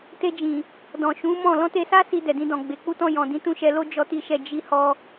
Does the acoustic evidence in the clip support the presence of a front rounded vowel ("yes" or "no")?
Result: no